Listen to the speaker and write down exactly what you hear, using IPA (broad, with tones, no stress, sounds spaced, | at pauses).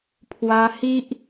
pʰ w a˧ h i˦ ʔ